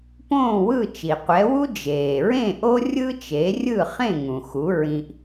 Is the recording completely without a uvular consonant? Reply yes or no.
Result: no